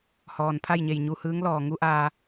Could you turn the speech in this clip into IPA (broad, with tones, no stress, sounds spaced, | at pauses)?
h ɔː˩ n pʰ a˥˨ j ɲ e˧˩ j ɲ u˧˩ h ɯː˧˥ ŋ l ɔː˧˩ ŋ u˧˥ ʔ aː˧